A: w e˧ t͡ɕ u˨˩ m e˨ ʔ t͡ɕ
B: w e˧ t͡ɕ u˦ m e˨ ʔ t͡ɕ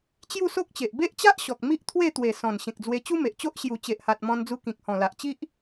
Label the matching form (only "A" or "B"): B